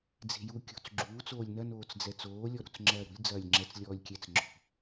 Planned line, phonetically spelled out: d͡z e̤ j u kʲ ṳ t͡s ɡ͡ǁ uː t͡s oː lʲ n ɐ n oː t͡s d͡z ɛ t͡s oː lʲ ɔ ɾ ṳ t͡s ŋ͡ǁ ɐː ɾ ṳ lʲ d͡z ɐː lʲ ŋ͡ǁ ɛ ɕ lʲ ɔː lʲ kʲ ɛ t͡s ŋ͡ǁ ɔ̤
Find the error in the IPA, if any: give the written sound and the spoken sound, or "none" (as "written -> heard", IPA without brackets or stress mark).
ɕ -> t͡s